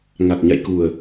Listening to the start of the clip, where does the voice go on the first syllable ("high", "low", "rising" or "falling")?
low